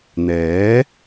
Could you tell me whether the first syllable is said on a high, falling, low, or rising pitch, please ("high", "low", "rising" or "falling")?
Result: rising